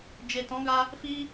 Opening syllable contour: low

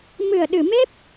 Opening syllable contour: low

